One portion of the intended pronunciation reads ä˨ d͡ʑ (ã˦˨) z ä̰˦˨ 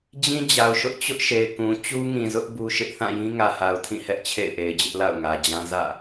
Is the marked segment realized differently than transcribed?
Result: yes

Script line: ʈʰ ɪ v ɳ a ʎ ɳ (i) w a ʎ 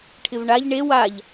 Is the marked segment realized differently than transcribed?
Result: yes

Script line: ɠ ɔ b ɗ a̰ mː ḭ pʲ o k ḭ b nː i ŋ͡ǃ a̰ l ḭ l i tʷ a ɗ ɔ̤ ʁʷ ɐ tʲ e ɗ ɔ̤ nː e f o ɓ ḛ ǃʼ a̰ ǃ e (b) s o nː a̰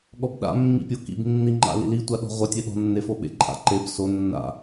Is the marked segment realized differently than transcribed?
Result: no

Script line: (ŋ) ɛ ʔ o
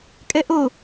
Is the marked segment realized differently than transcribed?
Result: yes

